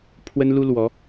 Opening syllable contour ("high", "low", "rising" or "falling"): high